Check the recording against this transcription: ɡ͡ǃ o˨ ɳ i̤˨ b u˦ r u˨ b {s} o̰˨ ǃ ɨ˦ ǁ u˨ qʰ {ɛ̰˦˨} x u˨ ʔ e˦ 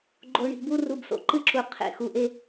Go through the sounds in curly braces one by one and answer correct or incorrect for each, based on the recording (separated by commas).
correct, incorrect